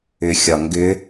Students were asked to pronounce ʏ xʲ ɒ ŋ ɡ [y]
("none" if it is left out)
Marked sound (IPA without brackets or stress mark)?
ʏ